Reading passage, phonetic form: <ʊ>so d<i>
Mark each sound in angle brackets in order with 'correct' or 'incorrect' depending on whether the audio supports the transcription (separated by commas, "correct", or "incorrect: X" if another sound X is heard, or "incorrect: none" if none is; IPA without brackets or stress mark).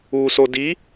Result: incorrect: u, correct